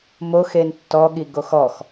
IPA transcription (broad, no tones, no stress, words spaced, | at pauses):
moxen tːɔɠi ɡoxɔx